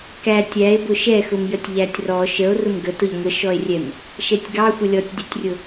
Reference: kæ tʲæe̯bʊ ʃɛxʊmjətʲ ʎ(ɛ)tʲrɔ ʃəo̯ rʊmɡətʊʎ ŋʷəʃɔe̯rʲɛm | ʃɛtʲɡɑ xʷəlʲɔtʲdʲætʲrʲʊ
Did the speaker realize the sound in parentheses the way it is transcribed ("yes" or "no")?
no